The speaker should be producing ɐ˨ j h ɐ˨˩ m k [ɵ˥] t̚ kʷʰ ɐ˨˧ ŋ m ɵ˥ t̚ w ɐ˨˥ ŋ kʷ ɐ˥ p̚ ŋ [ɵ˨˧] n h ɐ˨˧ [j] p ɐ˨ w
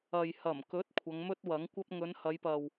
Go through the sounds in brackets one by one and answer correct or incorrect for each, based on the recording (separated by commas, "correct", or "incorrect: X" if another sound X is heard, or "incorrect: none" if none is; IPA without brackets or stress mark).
incorrect: ɵ˨˥, correct, correct